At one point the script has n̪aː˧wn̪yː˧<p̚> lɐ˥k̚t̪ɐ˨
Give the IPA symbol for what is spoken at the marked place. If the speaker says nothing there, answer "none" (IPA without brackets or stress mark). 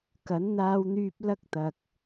p̚